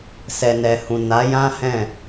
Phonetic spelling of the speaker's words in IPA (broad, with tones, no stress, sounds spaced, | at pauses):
s ɛ˨ n ɛ˨ h ũ˨ n a˨˦ j ã˦ h ɛ̃˦˨